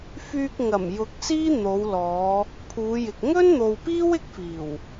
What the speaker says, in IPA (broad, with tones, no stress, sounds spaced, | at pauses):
f yː˧ k̚ ŋ ɐ˨˩ m j ʊ˨˥ k̚ s iː˥ n̪ o˨˧ w l ɔː˨˧ | pʰ uː˨˧ j ɪ˨ k̚ ŋ ɵ˥ n n̪ o˨ w p iː˥ w ɪ˥ k̚ f iː˨˩ w